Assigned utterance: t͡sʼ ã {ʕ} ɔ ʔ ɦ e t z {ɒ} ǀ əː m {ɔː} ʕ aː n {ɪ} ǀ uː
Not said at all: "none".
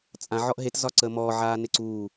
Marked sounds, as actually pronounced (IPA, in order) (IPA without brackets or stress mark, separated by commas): ʕ, ɒ, ɔː, ɪ